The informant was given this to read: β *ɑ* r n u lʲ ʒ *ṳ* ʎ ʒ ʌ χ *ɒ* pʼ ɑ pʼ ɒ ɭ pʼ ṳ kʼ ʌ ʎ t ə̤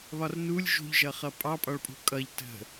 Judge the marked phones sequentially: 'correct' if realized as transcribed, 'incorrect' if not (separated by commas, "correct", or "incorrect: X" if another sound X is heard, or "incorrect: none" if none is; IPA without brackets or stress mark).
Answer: incorrect: ɒ, correct, incorrect: ʌ